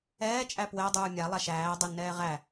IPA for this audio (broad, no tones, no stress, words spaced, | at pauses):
ɛːt͡ʃʼæ pwɛ dˤuːmʲalˠa ʃæːdˤɛ nɛːʁæ